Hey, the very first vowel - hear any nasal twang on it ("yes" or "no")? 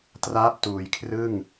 no